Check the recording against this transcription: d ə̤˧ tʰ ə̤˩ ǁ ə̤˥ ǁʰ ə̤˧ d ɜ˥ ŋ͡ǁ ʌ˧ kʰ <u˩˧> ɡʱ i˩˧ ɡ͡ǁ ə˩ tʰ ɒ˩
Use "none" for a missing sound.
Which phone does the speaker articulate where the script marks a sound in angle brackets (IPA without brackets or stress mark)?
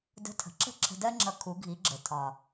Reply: u˩˧